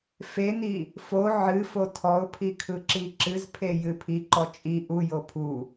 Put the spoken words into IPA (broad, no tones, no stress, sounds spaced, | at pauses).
f e n i | f o ʕ ɨ f o tʰ ɔ ʊ̯ pʰ i kʰ ɯ ǁ i ǁ ɨ z pʰ e j ɨ pʰ i ǃ ɔ t͡ʃʼ i ʔ u j o pʰ u